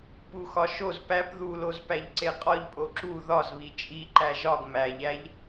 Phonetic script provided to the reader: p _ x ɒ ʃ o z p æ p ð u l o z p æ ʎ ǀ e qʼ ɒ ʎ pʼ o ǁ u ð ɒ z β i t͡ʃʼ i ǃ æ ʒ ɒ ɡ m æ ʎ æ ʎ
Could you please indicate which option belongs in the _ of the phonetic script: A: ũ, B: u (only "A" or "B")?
B